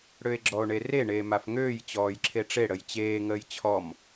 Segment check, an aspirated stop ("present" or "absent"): present